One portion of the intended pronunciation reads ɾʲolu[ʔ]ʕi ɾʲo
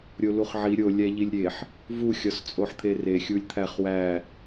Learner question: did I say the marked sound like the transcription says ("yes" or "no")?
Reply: no